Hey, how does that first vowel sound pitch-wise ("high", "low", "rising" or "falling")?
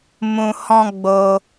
low